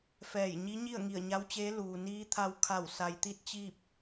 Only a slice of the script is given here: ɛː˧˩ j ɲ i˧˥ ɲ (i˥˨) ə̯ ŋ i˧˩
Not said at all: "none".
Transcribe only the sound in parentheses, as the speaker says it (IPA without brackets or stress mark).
i˥˨